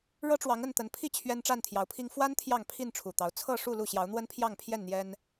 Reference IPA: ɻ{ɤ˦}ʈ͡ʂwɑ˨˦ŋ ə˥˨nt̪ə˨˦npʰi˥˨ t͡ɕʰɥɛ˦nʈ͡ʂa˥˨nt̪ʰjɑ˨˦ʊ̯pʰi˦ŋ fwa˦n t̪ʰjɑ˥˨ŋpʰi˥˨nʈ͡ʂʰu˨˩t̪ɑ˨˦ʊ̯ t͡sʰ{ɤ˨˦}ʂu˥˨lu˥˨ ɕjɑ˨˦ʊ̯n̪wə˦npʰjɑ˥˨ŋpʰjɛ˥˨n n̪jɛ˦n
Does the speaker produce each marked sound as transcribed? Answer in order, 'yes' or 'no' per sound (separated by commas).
yes, no